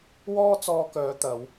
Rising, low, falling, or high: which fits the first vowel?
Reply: high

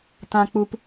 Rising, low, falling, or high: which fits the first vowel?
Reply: low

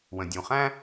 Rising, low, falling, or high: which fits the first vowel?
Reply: low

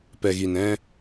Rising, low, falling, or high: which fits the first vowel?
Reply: low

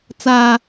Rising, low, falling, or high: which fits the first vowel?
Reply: high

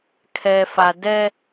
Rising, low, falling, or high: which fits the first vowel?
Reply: low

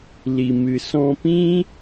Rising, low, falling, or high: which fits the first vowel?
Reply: low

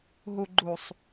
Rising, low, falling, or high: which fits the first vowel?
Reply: low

